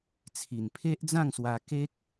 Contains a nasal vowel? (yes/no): yes